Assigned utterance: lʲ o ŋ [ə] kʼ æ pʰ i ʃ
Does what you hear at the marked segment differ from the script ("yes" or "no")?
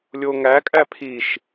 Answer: yes